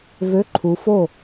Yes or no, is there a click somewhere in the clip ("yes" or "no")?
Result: yes